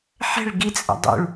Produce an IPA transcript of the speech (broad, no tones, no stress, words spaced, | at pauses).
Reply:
ħɛ̤ɭ ɡit͡sʼə̰ dˤṵɭ